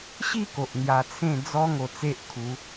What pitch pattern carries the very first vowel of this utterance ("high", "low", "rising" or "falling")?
falling